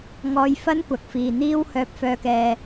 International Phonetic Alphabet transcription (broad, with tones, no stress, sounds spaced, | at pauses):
ŋ ɔː˧ j f ɐ˥ n kʷ ɐ˨ k̚ f iː˨ n̪ iː˥ w h œː˧ p̚ f œː˧ k ɛː˧